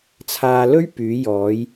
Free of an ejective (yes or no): yes